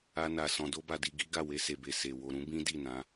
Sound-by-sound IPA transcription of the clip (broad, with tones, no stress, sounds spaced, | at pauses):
a˦ n a˧ s ɔ̃˧ d o˦ b a˧ d i˧ ɡ i˦ ɡ a˦˨ w e˧ s e˨ b e˨ s e˨ w o˨ ɾ ũ˨˦ b ĩ˦ d i˦˨ n ã˨˦